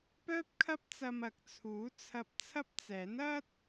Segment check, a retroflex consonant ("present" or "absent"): absent